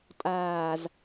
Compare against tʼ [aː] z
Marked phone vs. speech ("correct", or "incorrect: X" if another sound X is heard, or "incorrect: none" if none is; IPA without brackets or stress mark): correct